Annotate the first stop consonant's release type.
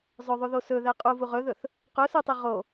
ejective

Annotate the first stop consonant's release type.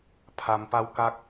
aspirated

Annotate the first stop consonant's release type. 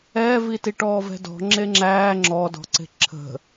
plain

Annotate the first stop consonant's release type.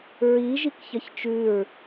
plain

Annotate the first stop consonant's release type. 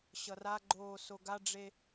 click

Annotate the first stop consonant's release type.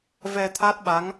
aspirated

